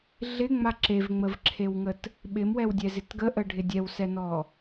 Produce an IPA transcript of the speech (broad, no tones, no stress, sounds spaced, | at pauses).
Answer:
ɮ ɪ ŋ͡m a ǁ e v ŋ͡m ə v ǁʰ e w ŋ ə t | ɓ ɪ m w ɛ w dʲ ɛ z ɪ t ɡ ə ʔ ə ɖʱ ɪ dʲ ɛ w s ɛ n ɔ